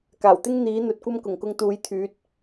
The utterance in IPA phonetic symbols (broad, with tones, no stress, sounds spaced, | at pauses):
k aː˨˩ w t̪ ɪ˥ ŋ n̪ iː˨˥ n̪ ɵ˨ t̚ kʷ ɐ˥ m k ʊ˨˩ ŋ k ʊ˧ ŋ t̪ uː˨˧ j t̪ʰ yː˨˥ t̚